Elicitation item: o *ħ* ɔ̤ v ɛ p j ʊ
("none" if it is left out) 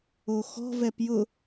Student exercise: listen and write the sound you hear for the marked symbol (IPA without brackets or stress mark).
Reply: x